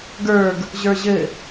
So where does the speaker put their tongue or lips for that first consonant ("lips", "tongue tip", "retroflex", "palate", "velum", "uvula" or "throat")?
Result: velum